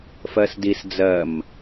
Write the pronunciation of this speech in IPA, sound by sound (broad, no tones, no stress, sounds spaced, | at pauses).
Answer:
f ɜ s d i s d͡z ɜ m